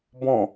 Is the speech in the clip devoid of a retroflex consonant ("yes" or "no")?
yes